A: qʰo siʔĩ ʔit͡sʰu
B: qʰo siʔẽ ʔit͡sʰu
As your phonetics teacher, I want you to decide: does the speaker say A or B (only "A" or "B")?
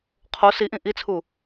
A